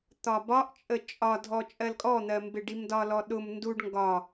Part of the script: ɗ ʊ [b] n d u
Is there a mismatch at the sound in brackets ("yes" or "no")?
yes